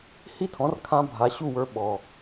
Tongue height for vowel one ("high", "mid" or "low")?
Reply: high